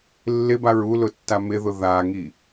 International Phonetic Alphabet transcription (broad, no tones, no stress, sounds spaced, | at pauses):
lː ɪ b a ɹ u l ʊ tː a m ɪ ð ʊ ð a ŋ i